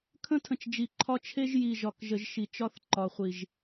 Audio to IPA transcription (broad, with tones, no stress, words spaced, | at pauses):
kʰə̃˦tʰə̃˨t͡ʃ d͡ʒi˨ǃʰɒ˦ t͡ʃʰe˦ʒ ji˨ʒɒ˨k ʒə˨ʒʃi˨t͡ʃɒ˦θ ǃɒ˨χʷi˨ʒ